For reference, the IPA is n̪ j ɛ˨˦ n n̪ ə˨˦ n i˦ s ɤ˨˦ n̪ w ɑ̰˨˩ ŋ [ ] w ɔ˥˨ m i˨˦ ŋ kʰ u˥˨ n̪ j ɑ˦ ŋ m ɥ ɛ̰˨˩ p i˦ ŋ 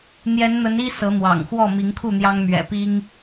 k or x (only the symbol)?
x